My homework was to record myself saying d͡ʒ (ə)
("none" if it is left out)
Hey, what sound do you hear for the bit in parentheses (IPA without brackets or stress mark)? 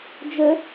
ə